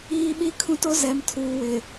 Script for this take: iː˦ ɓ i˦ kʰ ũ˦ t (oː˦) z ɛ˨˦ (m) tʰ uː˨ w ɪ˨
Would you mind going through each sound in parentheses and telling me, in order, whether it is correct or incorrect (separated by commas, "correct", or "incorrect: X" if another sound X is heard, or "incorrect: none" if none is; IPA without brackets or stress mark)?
incorrect: o˦, correct